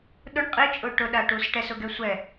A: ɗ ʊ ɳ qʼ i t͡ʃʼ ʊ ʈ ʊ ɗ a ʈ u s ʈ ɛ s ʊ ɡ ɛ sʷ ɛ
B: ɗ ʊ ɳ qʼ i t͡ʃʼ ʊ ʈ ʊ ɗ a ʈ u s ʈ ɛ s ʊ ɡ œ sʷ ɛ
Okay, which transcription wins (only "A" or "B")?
A